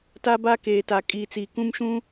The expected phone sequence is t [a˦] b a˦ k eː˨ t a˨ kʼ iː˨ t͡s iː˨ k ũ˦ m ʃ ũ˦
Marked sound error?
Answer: no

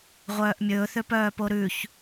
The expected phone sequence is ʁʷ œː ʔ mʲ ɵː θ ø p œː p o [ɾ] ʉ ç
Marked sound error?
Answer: no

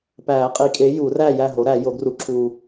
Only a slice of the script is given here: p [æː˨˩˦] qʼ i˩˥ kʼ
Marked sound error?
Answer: no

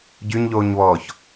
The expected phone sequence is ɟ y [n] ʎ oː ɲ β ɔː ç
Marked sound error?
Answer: yes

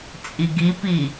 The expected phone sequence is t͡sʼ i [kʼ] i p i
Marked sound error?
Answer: yes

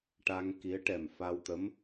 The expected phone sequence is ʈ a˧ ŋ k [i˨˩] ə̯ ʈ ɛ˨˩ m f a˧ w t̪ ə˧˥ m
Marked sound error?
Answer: yes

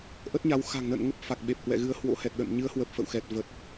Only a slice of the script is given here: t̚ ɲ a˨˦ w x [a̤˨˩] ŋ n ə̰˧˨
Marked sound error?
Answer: no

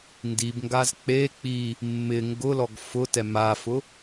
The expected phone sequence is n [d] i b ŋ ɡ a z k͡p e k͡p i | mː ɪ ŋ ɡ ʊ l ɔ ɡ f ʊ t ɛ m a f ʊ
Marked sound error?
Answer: no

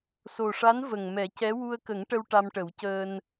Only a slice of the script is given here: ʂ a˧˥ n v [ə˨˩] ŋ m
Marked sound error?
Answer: no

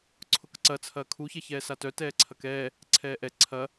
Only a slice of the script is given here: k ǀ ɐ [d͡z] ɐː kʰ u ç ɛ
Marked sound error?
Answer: yes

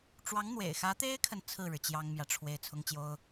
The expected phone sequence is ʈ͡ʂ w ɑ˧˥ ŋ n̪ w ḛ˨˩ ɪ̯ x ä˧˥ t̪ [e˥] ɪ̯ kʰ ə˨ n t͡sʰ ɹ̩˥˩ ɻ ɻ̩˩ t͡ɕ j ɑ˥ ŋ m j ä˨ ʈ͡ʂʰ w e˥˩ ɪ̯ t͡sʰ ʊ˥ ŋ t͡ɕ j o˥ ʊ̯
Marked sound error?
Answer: no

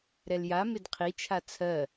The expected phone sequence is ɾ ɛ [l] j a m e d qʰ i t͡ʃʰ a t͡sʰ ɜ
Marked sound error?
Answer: no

